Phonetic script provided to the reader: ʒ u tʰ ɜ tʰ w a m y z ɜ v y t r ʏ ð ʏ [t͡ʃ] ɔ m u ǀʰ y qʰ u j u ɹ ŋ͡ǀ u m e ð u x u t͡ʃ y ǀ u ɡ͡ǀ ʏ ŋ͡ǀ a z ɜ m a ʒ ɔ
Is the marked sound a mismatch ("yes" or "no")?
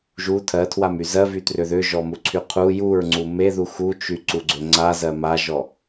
yes